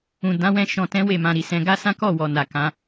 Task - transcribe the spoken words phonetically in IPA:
ũ˨ d ã˨˦ w ɛ̃˧ ʃ ɔ̃˧ t ɛ̃˦ w e˦˨ m ã˧ ɾ i˨ s ɛ̃˧ ɡ a˦ s ã˦ k ɔ˦˨ w ɔ˨ n a˨ k ã˨˦

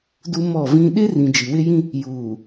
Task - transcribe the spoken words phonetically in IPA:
d u˦ m ɔ˦˨ v ĩ˦ ɗ ɪ˦ r ĩ˨ d͡ʒ i˨ w ɪ˦ j ĩ˦ | j uː˨

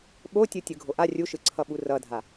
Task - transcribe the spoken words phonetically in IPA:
ɓ o tʲ ɯ tʲ ɯ ɡʱ o ʔ a rʲ u ʃ ɯ ǀʰ ʌ ɓ u r ʌ dʱ a

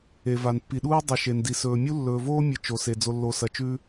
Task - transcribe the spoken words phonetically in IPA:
e˨ v a˨ n pː i˨ ɗ uː˦ dˤ i˨ ʃ e˨ n d i˨ s ɵː˨ mʲ u˦ lː ɵː˨ v oː˦ mʲ ɨ˨ t͡ʃ o˨ s e˨ d͡z o˨ lː o˨ s ɐ˨ t͡ʃ ʉ˦

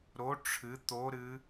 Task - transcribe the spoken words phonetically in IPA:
ɾ o ʈ͡ʂʰ ɨ t̪ o ɾ ɨ

